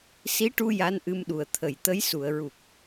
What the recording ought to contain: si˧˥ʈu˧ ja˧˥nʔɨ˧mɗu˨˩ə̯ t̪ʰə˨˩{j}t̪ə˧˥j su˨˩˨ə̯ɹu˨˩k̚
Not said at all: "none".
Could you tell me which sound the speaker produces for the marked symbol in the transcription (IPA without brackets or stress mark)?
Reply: j